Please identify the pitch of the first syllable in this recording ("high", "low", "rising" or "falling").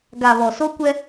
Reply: low